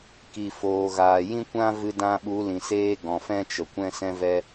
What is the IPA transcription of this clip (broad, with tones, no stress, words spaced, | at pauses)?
ki˨foː˨ɣaː˨ jĩ˦kʷã˦ vɨ˧dã˧ɓu˨˦ lĩ˨seː˦ɡɔ̃˨ fɛ̃˦t͡ʃə˨kʷɛ̃˦ sɛ̃˧vɛ˧